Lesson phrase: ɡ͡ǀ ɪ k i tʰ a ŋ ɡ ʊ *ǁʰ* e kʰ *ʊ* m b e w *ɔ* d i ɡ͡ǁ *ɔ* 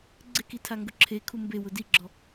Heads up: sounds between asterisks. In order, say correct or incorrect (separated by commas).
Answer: correct, incorrect, incorrect, correct